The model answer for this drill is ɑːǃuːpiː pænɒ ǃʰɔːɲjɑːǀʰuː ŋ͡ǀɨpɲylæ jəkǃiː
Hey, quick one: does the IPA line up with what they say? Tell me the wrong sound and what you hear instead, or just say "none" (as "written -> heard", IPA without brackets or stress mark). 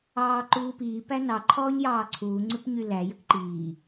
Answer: ɒ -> ɑ